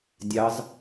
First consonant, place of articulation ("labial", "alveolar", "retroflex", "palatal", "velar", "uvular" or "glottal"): alveolar